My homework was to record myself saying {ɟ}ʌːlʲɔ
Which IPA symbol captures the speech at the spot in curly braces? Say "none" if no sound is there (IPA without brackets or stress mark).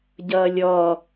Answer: ɟ